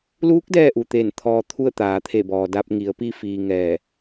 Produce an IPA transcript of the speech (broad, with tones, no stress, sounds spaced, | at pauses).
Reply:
l uː˧˥ k̚ d ɛː˥˨ ʔ u˩ t̪ eː˧˩ n t̪ʰ ɔː˧ t̪ʰ u˥˨ ə̯ t̪ aː˩˧ t̪ʰ e˧˩ b ɔː˩ d a˧ p̚ ŋ i˩˧ ə̯ p i˧ f iː˩ ŋ ɛː˧˩